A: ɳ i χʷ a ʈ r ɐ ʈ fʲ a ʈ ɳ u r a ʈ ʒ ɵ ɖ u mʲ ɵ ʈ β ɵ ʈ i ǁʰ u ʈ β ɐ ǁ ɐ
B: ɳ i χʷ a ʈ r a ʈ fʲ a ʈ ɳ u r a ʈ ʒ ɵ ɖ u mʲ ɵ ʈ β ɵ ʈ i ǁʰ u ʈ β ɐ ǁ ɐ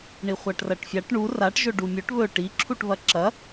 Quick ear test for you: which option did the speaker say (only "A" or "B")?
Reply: A